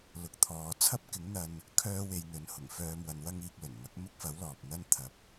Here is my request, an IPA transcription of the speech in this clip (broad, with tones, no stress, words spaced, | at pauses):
lʊ˨k̚t̪ʰɔː˨ t͡sʰɐ˥p̚kɪ˨˥ŋ n̪ɐ˧n | kʰœː˥we˧jn̪ɵ˨˥n hʊ˨˩ŋ fœː˧mwɐ˨˧nwɐ˥ŋiː˧k̚ lɵ˨˩nmɐ˨˥k̚ mʊ˥k̚fɐ˨˥w lɔː˨p̚n̪ɐ˥n t̪ʰɐ˨p̚